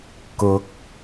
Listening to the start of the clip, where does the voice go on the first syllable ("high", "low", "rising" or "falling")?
rising